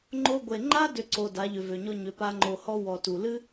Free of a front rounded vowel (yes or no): no